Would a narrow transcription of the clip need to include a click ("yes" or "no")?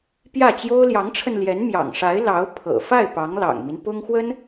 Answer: no